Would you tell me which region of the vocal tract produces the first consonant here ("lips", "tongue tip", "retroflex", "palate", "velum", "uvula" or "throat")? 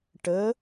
retroflex